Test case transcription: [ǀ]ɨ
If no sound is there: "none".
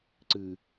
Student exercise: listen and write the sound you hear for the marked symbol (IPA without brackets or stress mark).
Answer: ǀ